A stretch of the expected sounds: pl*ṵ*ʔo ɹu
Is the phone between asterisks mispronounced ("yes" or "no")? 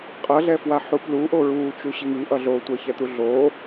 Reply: yes